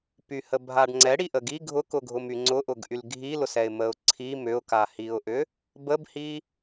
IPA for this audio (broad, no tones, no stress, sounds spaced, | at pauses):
p y h ə bʱ a ɖ ŋ͡ǀ ɛ ɽ i ʔ ə ɡ i ɡʱ ʊ k ʊ ɡʱ ʊ m y ŋ͡ǀ ʊ ʔ ʊ ɡ ʔ y l ɡʱ i l ʊ s ɛ ɪ̯ m ə ʊ̯ ǀʰ i m ʏ ʊ̯ k a h i ʊ̯ ʔ ʏ | b ə b h i